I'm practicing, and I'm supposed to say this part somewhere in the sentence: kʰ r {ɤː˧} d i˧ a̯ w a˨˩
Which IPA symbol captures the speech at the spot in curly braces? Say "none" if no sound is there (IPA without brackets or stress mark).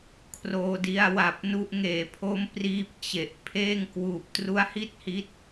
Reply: oː˧